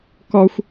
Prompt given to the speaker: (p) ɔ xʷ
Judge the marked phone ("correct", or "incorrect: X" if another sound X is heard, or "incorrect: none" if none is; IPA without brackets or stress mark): incorrect: k